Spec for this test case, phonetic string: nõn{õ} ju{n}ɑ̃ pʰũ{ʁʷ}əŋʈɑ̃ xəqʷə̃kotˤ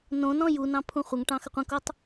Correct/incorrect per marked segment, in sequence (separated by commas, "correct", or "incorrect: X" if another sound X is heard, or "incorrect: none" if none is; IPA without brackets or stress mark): incorrect: ɔ̃, correct, incorrect: χʷ